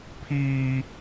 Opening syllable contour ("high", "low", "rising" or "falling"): high